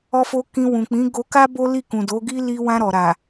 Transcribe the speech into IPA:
ɔ˦ f o˦ k ĩ˧ w ũ˨ k͡p ĩ˨˦ ɡ o˧ k a˦ b o˦ l i˦˨ k ũ˨ d o˨˦ ɡ i˦ l i˧ w ã˧ ɾ ɔ˨ ɾ a˨

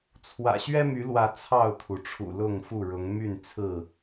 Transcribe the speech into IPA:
t͡sʰ w ä̰˨˩ ɕ ɥ ɛ˦ m y˨˦ l w ä˨˦ t͡sʰ ɑ˥˨ ʊ̯ t̪ʰ u˩ ʈ͡ʂʰ ṵ˨˩ l ʊ˥˨ ŋ f u˥˨ ɻ ʊ˨˦ ŋ m y˥˨ n t͡sʰ ɹ̩˥˨

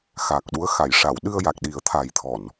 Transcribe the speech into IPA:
x aː˨˩ k̚ ɗ u˧˥ ə̯ x a˨˩˨ j ʂ a˨˩˨ w ɗ ɨ˧ ə̯ j a˨˩ k̚ ɗ i˨˩˦ ə̯ t̪ʰ a˨˩ j t̪ʰ ɔ˨˩˨ n

